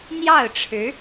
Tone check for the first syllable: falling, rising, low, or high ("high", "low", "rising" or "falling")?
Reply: falling